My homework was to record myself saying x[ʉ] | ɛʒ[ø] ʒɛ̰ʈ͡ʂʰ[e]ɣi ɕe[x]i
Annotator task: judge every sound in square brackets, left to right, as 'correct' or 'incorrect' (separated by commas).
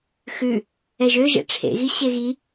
correct, correct, incorrect, incorrect